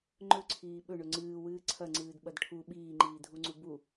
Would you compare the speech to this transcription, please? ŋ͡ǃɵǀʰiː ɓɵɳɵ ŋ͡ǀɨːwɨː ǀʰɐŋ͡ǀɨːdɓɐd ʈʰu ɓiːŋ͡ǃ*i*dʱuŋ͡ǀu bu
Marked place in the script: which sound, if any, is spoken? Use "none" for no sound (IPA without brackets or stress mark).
iː